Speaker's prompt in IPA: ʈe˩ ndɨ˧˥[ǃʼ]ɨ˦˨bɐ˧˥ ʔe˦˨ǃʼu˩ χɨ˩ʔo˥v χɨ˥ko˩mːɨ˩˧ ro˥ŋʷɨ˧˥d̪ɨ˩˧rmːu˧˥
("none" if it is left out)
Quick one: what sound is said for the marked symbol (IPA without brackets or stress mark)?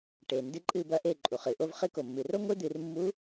ǃʼ